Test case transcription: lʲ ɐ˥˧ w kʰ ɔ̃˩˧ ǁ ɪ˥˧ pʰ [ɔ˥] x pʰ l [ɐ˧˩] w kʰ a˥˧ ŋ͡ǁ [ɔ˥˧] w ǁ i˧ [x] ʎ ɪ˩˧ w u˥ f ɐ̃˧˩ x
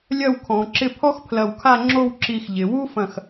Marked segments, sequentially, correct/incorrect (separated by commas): correct, correct, incorrect, correct